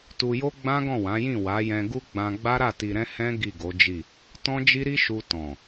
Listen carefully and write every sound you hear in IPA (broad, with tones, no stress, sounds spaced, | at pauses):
t u˧ j o˦ ɡ͡b ã˦ ɡ ɔ̃˦˨ w ã˨˦ j ĩ˦˨ w a˨˦ j ɛ̃˧ ɡ u˦ ɡ͡b ã˧ ɡ͡b a˦ ɾ a˦˨ t i˨ ɾ ɛ̃˧ h ɛ̃˦ ɡ i˦˨ ɡ o˨˦ d͡ʒ i˦˨ | t ɔ̃˦ d͡ʒ i˦ ɾ i˦ ʃ u˧ t ɔ̃˨